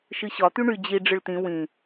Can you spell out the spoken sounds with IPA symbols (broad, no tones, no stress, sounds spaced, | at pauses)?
ʃ ɨ ɕ ɒ t̪ y ɳ y d͡ʑ i ɖ͡ʐ ɨ ɭ t̪ ĩ w ĩ